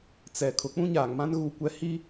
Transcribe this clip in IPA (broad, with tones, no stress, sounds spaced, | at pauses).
t͡s ɛ˨ kʰ ʊ˨ k͡p ũ˦ ɲ aː˨ ŋ m ã˦ n ɣ u˦˨ kʷ ɛ˦ h i˦